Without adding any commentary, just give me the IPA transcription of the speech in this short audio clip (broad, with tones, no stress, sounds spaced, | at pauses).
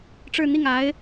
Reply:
ʈ͡ʂ ɻ̩˥˧ n̪ i˥˩ ŋ a˧˥ ɪ̯